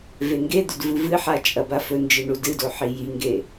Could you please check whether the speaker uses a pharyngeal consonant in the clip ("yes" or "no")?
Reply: yes